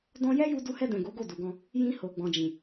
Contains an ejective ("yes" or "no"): no